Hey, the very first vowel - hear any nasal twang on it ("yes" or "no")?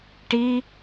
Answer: no